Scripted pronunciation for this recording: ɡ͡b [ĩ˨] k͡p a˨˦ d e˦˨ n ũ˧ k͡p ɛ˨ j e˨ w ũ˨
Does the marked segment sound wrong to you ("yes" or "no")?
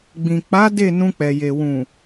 no